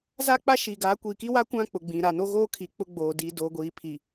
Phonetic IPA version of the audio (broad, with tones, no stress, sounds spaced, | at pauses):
z a˦ k͡p a˦ ʃ i˨ ɡ aː˨˦ kʷ iː˨ k i˦ w a˦ kʷ ã˦ k͡p ʊ˨ ɡ͡b ĩ˨ ɾ a˨ n o˦ ɣ oː˦ kʰ i˨ k͡p ʊ˦ ɡ͡b oː˨ d iː˨ d oː˨ ɡʷ iː˨ pʰ i˨